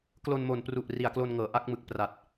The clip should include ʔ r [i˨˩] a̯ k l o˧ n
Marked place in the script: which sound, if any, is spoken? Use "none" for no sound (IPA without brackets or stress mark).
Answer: i˨˩